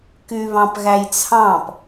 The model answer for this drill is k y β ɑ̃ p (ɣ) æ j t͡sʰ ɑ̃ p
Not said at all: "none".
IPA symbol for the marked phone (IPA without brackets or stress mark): ɣ